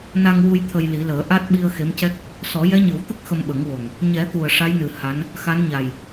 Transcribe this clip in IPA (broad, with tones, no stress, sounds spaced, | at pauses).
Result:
n a˧ ŋ w u˧ j t̪ʰ ə˧ j l i˨˩˦ l əː˨˩˦ ʔ a˦˥ t̚ ɓ i˧ ə̯ x e˧˥ m c ɛ˦˥ k̚ | s ɔ˨˩˦ j ɛ˧˥ ɲ ɨ˨˩˦ w t̪ ə˦˥ k̚ x ə˧ m ɓ ə˨˩˦ ŋ w o˨˩ ŋ | ɲ ɛ˨˩˦ t̪ u˨˩ ə̯ ʂ a˧˥ j n ɨ˨˩ h a˧˥ n | x a˧˥ n ɲ a˨˩ j